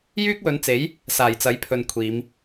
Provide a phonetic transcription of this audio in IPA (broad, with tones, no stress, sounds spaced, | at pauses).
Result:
j yː˥ k̚ w ɵ˨˧ n t͡s e˨˥ j | s aː˨˩ j t͡s ɐ˨˥ j pʰ ɵ˨ n kʷʰ iː˨˧ m